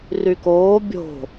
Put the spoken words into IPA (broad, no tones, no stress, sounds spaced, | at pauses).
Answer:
r y k oː bʲ o̤